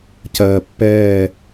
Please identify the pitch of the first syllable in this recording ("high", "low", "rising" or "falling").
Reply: low